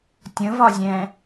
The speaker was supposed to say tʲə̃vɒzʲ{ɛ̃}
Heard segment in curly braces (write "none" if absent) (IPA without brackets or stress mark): ɛ̃